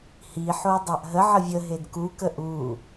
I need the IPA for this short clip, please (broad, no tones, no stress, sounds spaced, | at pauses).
h i ħ o dˤ a ʔ ɦ ə ʕ ə vʲ ə ɦ e d k u k ə ʔ u